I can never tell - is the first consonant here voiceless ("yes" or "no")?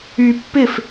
yes